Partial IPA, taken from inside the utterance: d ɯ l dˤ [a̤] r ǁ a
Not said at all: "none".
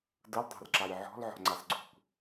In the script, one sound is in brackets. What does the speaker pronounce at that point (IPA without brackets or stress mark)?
a̤